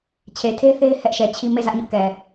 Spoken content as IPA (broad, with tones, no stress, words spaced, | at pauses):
t͡ɕʰe˨tʰe˦θe˦ɪ̯ hɛ˦ʔʃɛ˨t͡ɕʰi˦ me˦˨zä˦ʔɲʊ˦ʔkɛ˨